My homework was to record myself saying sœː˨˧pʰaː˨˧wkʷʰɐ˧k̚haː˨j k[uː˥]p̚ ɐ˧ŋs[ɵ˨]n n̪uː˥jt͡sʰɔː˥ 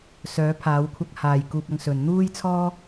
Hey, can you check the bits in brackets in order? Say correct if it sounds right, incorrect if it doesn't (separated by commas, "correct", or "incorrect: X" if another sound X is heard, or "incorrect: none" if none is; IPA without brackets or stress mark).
incorrect: uː˧, correct